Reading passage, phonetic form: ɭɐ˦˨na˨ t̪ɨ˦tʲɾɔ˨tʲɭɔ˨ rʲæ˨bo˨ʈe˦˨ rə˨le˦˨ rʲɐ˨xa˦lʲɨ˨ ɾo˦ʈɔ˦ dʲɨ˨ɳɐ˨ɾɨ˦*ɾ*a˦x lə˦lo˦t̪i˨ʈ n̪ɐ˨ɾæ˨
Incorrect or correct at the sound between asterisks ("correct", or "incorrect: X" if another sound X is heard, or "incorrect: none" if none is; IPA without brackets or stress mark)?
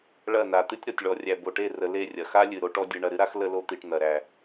correct